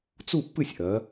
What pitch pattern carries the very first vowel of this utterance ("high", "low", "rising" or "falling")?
falling